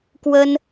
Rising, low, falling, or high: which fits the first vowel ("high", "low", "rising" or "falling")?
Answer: high